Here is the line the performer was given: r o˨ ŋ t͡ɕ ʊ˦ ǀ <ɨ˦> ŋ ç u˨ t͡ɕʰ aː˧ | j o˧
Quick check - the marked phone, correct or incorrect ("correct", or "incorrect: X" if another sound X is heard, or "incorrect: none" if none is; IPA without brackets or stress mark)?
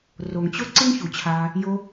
correct